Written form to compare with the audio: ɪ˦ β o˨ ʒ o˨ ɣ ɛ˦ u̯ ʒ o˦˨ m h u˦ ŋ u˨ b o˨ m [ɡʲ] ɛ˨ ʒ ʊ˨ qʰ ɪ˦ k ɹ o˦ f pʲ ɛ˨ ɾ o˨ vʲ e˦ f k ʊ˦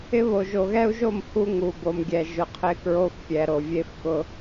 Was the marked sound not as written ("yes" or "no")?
no